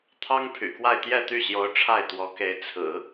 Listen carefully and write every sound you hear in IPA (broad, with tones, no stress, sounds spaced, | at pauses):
t̪ʰ ɑ˥ ŋ pʰ y̰˨˩ k w a˥˧ ɪ̯ t̪ j ɛ˥˧ t̪ y˥˩ ɕ j o˧˥ ʊ̯ ʈ͡ʂʰ a˥˩ ɪ̯ t̪ w ɔ˧˥ k e˧˥ ɪ̯ t͡sʰ ɹ̩˨˩˦